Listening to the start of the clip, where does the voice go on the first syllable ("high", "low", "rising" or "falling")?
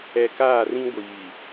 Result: low